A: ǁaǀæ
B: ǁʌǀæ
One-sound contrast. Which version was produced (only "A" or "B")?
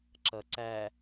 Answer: B